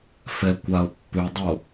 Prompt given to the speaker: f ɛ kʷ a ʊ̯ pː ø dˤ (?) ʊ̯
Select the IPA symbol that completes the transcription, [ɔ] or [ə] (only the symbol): ə